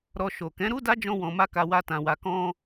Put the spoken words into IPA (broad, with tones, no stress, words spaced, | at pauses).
ɾɔ˧ʃo˨ kɛ̃˨˦ɾu˦da˦d͡ʒɔ̃˧ wɔ̃˧ma˦ka˧ wa˦tã˧wa˧ kɔ̃˧